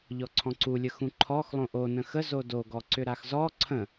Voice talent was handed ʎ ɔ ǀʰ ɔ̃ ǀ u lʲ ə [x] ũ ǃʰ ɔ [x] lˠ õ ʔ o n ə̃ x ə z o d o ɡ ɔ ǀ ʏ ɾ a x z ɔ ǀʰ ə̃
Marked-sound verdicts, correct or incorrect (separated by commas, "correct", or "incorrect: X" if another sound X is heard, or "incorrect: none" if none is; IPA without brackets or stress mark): correct, correct